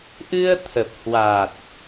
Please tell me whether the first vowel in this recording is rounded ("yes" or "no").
no